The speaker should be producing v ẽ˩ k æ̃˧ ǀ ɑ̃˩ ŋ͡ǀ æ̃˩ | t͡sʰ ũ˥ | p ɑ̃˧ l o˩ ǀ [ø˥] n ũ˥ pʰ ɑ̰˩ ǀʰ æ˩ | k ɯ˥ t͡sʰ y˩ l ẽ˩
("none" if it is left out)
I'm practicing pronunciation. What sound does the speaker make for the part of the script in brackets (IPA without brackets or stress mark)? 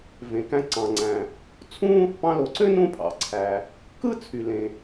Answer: ø˥